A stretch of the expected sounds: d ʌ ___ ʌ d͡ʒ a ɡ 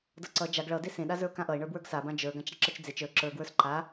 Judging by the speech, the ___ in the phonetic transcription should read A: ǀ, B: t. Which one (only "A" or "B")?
A